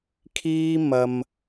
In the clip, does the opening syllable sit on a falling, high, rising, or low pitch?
high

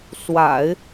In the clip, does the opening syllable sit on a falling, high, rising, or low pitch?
low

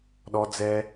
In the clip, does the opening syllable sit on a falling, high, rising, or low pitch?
high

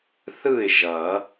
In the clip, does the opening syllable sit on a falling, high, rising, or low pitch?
falling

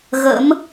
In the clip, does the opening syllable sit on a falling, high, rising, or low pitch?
rising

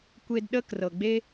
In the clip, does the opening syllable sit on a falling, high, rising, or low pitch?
high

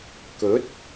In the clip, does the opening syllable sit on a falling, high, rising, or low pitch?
rising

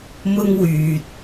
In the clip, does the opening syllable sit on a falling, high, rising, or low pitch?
high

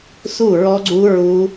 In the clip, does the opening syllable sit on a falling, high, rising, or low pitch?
falling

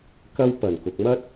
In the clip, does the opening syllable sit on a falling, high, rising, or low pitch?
high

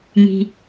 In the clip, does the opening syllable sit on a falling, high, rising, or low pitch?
low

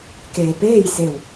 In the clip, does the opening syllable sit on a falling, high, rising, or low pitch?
low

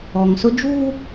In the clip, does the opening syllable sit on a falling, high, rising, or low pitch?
low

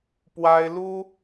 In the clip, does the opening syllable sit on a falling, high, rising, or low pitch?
high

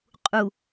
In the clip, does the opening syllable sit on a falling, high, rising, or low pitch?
low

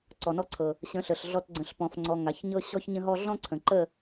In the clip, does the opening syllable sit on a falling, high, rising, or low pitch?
low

